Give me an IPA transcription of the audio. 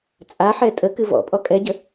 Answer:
t͡sʼ a ħ ɛ tʼ ə k ɨ v ɔ̰ pʼ ɔ kʼ ɛ ɟ ə

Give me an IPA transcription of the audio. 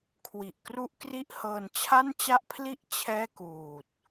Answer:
kʰ w i˨˩ ʔ k r u˥˩ ʔ k r i˥˩ ʔ h ɤː˧ n t͡ɕʰ a˥˩ n t͡ɕ a˥˩ ʔ pʰ l i˥˩ ʔ t͡ɕʰ ɛː˥˩ k uː˨˩ t̚

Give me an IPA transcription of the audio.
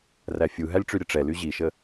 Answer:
r æ fʲ u ɦ æ lʲ ʈ͡ʂ y ɾʲ ə ʈ͡ʂ ɛ l y ʑ i ʃ ə

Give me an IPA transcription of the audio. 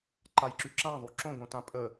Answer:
ǃ a j ǁ y ǁ ã ðˤ u ǁ õ ɡ õ t ã pʼ ə

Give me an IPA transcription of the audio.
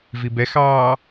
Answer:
v i b ɛ x ɑː

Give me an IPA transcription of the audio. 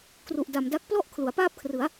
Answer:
k r u˨˩ ʔ d a˨˩ m d a˦˥ k̚ p l ɔ˥˩ ʔ kʰ l u˩˦ a̯ p aː˥˩ p̚ kʰ r ɯ˩˦ a̯

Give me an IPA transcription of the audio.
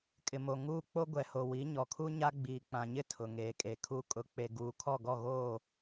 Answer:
kʼ ɪ˨ m o˨ ŋ uː˦ k͡p o˦ ɡʷ ɛ˨ h o˨ w i˨˦ ɲ ɔ˨ kʰ u˦ ɲ a˦ ɡ͡b iː˨ k͡p ã˨ ɲ ɪ˦ tʰ ʊ˨ ŋ eː˨ kʼ e˨ kʰ u˨ kʼ ʊ˨˦ k͡p e˨ ɡ uː˨ kʰ ɔ˦˨ ɡ ɔ˦˨ ɣ oː˦˨

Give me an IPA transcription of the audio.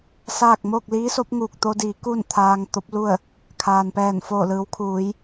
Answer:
s aː˥˨ k̚ m o˥˨ k̚ l iː˧˥ s o˧˥ p̚ ŋ uː˧˩ k̚ t̪ o˧ d iː˩˧ k u˥˨ n t̪ʰ aː˧ ŋ t̪ o˧˥ p̚ l u˥˨ ə̯ | kʰ aː˩ n p ɛː˧˩ n f oː˧˩ l ɯː˩˧ w kʰ uː˩˧ j

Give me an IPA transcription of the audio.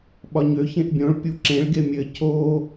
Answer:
ɓ ɒ ɲ ø ç ẽ ʔ bʲ õ ɭ pʲ u ǁ ẽ ɭ ɡ e mʲ ɘ cʰ o

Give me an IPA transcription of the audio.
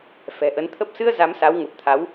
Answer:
f ɛ̤˨˩ ʔ ə˨˦ n t̪ʰ ə˦˥ p̚ s ɨ˧ ə̯ z a˨˦ m s a˨˦ w ŋ ə˨˩ p̚ t̪ʰ a˨˦ w

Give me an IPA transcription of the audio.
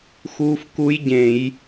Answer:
x uː˦˥ f k u˦˥ j ɟ ẽ˧˩˧ j

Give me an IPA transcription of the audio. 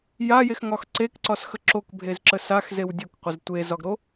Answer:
j a j e x ŋ ɒ x ǀ e k ǀ ɒ s x ə ǁ o k bʱ e z ǁ ə s a x z e w dʲ o k qʷ ə z tʷ e z ɒ ɡ ɾ o

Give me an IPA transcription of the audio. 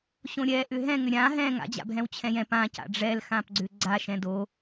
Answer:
ɕ õ ɾʲ ɛ ʔ ʏ ɦ ɛ̃ ŋ ʏ ɾʲ ã ɦ ɛ̃ ŋ a̰ d͡ʑ a̰ bʱ ɛ̃ w t͡ɕʰ ɛ̃ j ɛ̃ p ã c a̰ ɖ͡ʐ ɛ l x ã p ɡ͡ǀ ʏ ɡ͡ǀ a ʃ ɛ̃ d o

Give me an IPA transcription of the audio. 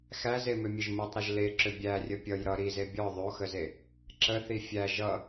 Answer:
x æ z e m ʏ mʲ ə ʒ m u tˤ ɾ ʌ ʒ l e ǁ ʏ bʲ æ rʲ ə pʲ ʌ j ɾ ʌ ɾ i z e bʲ ɔ ðˤ o x ə z e | ǁ ə θ i fʲ æ ʒ ʌ

